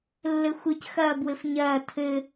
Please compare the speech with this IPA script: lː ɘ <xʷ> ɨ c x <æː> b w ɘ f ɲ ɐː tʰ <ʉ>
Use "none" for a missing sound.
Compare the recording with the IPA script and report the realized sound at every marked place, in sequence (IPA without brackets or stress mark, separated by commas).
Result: xʷ, ɐː, ɘ